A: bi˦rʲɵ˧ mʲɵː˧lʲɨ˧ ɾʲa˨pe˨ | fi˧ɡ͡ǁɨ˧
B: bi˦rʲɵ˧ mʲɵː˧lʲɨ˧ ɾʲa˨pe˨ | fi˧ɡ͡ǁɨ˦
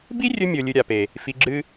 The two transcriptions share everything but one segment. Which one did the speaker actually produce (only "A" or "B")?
B